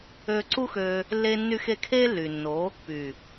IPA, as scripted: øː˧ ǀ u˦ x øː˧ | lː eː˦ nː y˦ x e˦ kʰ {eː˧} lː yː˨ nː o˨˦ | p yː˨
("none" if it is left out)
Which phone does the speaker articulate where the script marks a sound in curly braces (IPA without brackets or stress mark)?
eː˦